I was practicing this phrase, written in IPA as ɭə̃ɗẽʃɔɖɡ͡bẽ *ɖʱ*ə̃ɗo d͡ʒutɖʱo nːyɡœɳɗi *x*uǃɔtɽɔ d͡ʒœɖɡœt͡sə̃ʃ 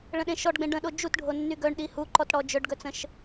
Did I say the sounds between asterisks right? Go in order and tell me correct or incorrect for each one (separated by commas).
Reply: incorrect, incorrect